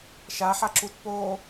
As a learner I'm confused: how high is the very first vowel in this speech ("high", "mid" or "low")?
low